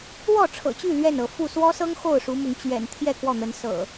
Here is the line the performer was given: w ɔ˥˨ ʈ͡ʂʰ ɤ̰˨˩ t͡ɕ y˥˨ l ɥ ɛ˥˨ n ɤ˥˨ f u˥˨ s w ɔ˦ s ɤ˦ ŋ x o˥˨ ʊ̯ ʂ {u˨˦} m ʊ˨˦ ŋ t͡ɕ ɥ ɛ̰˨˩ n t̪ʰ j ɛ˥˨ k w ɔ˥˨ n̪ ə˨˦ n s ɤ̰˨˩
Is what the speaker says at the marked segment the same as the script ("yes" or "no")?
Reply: yes